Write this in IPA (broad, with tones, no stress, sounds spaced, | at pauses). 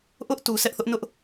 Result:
ʔ ʊ˦ ʔ t u˨ sʰ ɛ˦ ʔ θ ʊ˦ ʔ n ʊ˦ ʔ